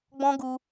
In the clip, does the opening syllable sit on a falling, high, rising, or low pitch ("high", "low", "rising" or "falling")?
high